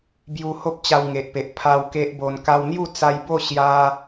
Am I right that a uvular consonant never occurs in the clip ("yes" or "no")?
yes